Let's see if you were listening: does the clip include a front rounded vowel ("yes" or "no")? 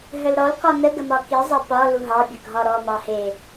yes